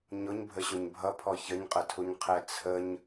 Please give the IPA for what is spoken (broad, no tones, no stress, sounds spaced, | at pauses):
ɲ ʊ ɲ bʱ ə ɕ ʊ ɲ bʱ ʌ pʰ ɔ ç ə ɲ qʼ ə tʰ u ɲ qʰ ɛ t͡sʰ ə ɲ